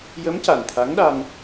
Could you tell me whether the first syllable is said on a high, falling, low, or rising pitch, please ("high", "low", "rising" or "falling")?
rising